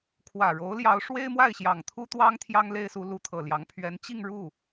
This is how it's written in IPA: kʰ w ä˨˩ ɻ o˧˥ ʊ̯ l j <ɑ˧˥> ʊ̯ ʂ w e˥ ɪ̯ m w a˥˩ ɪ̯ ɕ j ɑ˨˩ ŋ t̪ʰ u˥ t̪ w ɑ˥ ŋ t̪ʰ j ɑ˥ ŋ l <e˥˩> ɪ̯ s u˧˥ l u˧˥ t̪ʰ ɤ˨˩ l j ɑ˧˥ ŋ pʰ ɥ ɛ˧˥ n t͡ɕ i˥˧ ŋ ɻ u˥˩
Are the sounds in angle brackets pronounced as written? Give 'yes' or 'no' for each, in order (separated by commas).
yes, no